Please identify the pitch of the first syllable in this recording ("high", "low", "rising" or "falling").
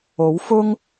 rising